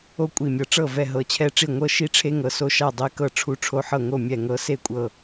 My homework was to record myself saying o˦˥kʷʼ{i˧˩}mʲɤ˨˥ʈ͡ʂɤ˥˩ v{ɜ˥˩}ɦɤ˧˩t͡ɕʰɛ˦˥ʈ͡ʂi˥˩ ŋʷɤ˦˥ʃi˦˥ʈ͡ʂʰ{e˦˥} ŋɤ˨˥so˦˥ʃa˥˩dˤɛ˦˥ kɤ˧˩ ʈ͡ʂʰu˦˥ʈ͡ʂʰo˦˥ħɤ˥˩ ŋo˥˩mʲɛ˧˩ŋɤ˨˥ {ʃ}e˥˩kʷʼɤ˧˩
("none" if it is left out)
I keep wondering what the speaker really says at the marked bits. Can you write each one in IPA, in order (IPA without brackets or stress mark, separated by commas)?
i˧˩, ɛ˥˩, e˦˥, s